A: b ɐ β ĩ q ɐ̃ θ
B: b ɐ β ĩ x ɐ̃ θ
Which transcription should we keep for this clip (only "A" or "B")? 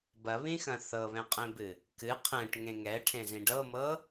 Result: B